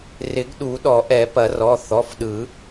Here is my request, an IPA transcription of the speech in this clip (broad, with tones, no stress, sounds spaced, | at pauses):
r ɪ˨˩˦ ɡ ɗ u˨˩˦ ɗ ɔ˨˩˦ ʔ ɛ˨˩˦ p ɐ˨˩˦ r ɔ˩˧˩ θ ɔ˩˧˩ f ɗ ɯ˨˩˦